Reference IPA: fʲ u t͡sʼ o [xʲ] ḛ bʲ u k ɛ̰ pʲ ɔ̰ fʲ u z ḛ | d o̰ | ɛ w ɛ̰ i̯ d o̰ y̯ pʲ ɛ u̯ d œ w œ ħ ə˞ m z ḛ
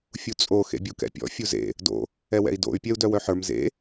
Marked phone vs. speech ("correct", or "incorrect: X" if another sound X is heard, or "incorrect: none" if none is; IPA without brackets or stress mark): incorrect: x